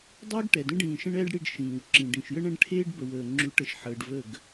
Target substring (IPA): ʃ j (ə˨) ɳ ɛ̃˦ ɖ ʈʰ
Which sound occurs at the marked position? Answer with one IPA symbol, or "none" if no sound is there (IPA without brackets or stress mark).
ə˦